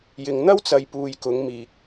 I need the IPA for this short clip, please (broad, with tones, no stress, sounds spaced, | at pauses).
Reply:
j ɪ˨ ŋ n̪ ɐ˥ w t͡s ɐ˨˧ j p uː˨ j k ʊ˨˥ ŋ m iː˨ k̚